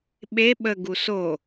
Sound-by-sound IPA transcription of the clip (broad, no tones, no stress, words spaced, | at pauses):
ɓe ɓə ɡuso